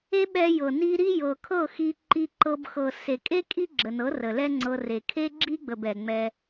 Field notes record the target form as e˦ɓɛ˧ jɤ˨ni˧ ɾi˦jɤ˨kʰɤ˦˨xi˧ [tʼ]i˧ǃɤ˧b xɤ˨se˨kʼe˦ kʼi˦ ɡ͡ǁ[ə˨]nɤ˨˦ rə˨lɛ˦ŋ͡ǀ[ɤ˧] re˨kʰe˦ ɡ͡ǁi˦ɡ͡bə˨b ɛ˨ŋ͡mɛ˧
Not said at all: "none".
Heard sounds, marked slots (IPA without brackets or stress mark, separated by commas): ǃ, ə˨, ɤ˧